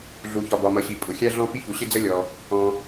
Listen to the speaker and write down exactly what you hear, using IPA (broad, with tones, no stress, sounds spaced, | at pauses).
ɮ u˩ ç ɒ˩ b ɒ˩ m ʌ˩ ɕ i˩ pʼ ʊ˩ xʲ æ˥ ɮ ɔ̃˥ p i˥ ç u˩ ɕ ɪ˥ d͡z ə˥ lʲ ɔ˩ | ɔ̃˩